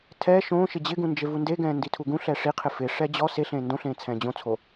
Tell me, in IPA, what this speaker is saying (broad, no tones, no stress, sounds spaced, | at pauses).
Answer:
tʰ ɛ ʃ õː ʃ ɪ d͡ʑ ɪ ɡ ũ n d͡ʒ e v u n d e ɡ ɛ̃ː n d i tʰ u ɡ ũ ɬ ɛː ʂ i qʰ ɪ f ɪ ʂ ɛ d͡ʑ ɔ s e ɬ ẽː n d õ ɬ ẽː t͡sʰ ɛ̃ː d͡ʑ õ t͡sʰ o